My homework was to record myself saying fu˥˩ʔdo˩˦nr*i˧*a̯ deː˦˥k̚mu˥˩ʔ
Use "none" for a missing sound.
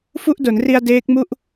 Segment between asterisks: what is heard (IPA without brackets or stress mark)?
i˧